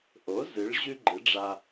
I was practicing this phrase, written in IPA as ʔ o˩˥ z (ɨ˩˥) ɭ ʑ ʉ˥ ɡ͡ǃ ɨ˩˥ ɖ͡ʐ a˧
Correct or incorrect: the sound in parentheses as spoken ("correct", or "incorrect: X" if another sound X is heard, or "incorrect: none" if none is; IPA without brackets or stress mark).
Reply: correct